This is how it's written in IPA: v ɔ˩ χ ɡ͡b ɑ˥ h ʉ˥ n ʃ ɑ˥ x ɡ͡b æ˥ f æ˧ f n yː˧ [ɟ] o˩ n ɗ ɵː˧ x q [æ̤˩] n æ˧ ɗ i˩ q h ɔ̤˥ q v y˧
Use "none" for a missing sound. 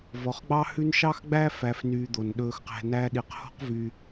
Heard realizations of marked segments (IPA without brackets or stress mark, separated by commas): d̪, æ̤˧